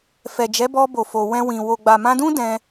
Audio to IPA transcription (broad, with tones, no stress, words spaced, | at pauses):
fɛ˨d͡ʒɛ˨˦bɔ˧bo˨ fo˨ wɛ̃˧wĩ˨ wo˨ɡ͡ba˨mã˧dũ˦ dɛ̃˧